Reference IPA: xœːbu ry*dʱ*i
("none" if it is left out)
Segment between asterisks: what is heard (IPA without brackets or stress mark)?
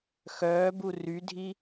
dʱ